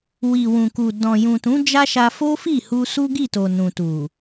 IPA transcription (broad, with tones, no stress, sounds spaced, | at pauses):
w i˨ w ũ˨ k u˨ d ɔ̃˨ j ũ˨ t ũ˨˦ d͡ʒ a˦ ʃ a˧ f o˦ f i˦˨ h u˧ s u˦ ɡ i˦˨ t o˨ n ũ˨ t u˨